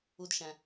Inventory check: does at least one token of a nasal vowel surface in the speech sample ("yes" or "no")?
yes